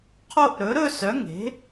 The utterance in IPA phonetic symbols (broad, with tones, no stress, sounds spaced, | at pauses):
qʰ o˥˧ ʔ ɾ ɵ˩˥ ɾ ɵ˥˧ s œ˩˥ ŋ e̤˩˥